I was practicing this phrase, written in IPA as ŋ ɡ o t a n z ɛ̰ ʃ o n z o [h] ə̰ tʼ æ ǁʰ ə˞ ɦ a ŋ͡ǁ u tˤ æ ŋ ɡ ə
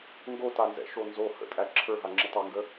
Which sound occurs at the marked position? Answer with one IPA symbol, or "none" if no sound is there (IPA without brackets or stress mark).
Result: h